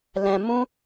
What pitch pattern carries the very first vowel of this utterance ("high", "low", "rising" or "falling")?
low